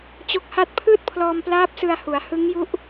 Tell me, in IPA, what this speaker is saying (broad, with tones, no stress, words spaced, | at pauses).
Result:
t͡ɕo˦˥k̚ha˥˩t̚ pʰɯː˥˩t̚pʰlɔː˧mplaː˦˥p̚ sɯ˧a̯ hu˩˦a̯hɯ˦˥ŋju˦˥ʔ